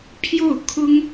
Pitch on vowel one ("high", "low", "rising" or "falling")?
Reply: falling